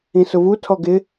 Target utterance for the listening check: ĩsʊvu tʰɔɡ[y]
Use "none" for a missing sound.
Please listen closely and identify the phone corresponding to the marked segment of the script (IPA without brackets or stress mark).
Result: ɪ